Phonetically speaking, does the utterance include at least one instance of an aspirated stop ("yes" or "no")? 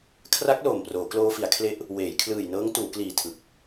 yes